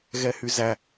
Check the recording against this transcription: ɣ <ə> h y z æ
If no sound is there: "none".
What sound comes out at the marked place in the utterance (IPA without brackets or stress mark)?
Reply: ɛ